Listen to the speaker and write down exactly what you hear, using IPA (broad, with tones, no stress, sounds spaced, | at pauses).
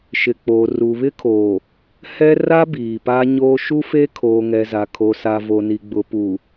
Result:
ʃ ɪ˨ k͡p oː˨ r u˨ β ɪ˦ kʰ oː˨ | h ɛ˦ r a˦ b iː˨ p a˦ ɲ oː˦ ʃ u˦ f e˦ kʰ oː˨ ŋ ɛ˨ z a˨ kʰ o˨ s a˨ v o˨ n i˨ ɡ͡b ʊ˨ p u˨